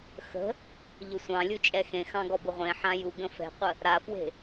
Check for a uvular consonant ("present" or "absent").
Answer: present